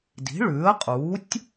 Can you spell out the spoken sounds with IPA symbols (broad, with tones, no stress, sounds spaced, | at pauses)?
d i̤˩˥ ɭ ʉː˩˥ ə̯ qʼ uː˩˥ tʲ